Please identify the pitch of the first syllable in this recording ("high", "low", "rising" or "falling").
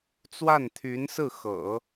falling